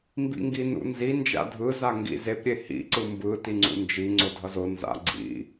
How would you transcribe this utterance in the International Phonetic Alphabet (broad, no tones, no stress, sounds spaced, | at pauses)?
m b ḭ ŋ ɡ i n ṵ n z i n d͡ʒ a̰ dʱ ɯ z a ŋ ɡ ḭ z e p ɾʲ e h ḭ ǀ ɯ m b ɯ t i ŋ͡ǀ ṵ n d͡ʒ i ŋ͡ǀ o dʱ ʌ z o n z a̰ ɡ͡ǀ ḭ